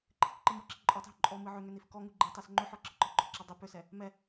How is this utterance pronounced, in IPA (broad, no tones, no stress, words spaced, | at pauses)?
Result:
ǃʰɨkǃɨmɔǁi ǃʼɔtˤɦʏ ǃʼɔ mɨʕʏŋʏ nifkɔŋu ɡ͡ǃɨtˤes ŋ͡ǃʏħɔ ǁɨǃɔɡ͡ǃɔǁa dˤʏ pʏsɛ | mɛ